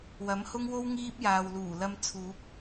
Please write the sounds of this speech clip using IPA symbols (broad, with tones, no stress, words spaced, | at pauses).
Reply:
wɐ˨˥mhʊ˥ŋwo˥w ŋiː˥p̚jaː˨w luː˨˩lɐ˧m t͡sʰuː˨˥p̚